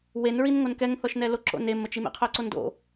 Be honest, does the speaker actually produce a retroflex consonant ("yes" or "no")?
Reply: no